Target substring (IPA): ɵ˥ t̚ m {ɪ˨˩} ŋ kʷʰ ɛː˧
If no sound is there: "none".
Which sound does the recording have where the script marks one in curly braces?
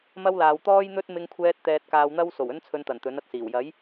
ɪ˧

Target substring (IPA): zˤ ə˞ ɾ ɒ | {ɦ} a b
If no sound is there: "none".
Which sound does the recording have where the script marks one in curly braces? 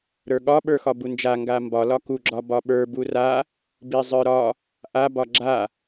ʔ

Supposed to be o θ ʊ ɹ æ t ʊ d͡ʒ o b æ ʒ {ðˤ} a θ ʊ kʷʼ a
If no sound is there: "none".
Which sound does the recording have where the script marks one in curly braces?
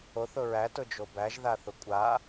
ð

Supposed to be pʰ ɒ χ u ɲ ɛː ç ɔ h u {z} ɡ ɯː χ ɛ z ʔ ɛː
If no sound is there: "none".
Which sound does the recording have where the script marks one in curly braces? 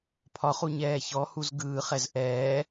z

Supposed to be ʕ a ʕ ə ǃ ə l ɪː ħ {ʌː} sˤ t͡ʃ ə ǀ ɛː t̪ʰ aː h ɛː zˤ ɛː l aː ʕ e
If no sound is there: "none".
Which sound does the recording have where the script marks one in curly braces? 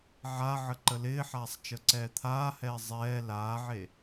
aː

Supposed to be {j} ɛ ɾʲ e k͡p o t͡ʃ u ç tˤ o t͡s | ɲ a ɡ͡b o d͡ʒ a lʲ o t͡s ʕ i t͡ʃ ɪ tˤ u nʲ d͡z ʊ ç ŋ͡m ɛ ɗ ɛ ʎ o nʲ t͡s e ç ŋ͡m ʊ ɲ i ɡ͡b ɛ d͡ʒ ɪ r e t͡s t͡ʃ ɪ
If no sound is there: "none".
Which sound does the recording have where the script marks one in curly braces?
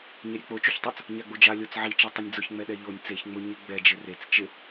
ɲ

